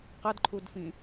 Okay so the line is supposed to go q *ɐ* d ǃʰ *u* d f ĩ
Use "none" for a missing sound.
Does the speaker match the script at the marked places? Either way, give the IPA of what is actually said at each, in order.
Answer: ɐ, u

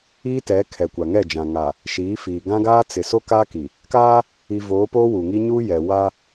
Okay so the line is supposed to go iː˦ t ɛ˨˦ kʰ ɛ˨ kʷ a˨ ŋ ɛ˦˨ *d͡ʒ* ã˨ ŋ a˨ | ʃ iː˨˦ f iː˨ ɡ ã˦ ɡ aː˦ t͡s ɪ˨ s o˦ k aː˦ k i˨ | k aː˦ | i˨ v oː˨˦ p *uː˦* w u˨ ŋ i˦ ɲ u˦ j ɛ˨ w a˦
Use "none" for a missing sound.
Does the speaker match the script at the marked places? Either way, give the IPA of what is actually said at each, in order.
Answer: d͡ʒ, oː˦

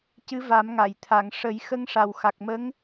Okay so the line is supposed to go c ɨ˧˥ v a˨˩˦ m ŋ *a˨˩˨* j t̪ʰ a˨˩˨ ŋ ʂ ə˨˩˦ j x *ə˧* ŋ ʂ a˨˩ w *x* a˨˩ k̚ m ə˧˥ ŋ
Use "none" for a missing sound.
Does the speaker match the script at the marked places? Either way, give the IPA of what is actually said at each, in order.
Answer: a˨˩˨, ə˧, x

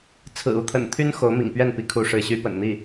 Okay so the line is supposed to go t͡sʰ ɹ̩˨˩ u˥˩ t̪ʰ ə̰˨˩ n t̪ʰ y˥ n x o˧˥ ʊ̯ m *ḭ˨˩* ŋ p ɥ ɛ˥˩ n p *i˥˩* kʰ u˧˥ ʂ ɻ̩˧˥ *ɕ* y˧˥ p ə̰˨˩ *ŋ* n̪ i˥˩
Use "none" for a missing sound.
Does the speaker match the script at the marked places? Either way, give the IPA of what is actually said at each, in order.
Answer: ḭ˨˩, i˧˥, ɕ, n

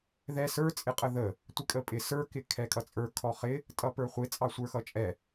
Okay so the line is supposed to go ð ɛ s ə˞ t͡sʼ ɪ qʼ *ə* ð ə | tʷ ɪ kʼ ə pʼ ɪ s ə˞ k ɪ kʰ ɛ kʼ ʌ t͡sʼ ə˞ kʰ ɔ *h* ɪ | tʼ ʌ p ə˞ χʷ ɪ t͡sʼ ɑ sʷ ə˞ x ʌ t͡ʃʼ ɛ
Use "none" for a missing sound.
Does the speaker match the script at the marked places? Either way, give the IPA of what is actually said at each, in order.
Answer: ə, χ

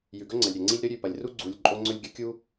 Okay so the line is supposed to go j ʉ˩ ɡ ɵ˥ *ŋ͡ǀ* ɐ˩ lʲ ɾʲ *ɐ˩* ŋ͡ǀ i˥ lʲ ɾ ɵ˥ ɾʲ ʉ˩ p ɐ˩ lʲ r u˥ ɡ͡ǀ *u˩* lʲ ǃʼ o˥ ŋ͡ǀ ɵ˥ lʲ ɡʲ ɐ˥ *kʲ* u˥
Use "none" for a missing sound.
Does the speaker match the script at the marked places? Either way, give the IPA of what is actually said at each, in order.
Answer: ŋ͡ǀ, ɐ˩, u˩, kʲ

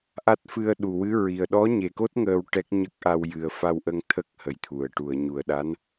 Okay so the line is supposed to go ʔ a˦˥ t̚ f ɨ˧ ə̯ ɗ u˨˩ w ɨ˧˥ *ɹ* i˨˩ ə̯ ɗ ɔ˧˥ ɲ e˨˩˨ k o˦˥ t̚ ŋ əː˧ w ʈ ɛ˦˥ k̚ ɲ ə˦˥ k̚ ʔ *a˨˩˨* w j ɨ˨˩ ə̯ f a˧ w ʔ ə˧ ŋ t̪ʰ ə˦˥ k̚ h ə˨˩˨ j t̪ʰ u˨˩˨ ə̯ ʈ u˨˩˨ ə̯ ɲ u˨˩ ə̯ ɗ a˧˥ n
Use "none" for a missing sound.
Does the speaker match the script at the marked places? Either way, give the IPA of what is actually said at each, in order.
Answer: ɹ, a˧

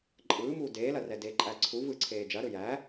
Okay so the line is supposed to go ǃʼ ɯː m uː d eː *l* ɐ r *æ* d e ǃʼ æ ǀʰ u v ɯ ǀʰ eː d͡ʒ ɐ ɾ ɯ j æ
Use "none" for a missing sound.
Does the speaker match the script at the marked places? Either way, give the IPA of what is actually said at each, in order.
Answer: l, ɛ

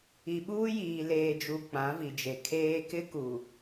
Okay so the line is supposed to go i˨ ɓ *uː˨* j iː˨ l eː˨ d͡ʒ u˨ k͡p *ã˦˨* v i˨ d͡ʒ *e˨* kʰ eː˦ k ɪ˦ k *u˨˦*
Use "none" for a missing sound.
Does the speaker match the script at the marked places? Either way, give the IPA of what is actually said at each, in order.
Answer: uː˦, ã˨˦, e˨, u˨

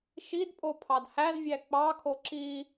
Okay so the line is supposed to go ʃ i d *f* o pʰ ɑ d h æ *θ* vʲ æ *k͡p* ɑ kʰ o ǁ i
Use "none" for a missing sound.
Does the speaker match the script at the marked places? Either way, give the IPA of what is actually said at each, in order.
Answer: pʼ, z, k͡p

